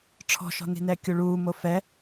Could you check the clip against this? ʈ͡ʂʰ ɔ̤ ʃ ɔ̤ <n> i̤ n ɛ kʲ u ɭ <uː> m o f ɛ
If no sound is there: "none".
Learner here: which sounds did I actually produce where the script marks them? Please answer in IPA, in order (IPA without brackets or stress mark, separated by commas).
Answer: n, uː